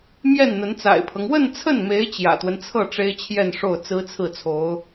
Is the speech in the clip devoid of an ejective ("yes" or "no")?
yes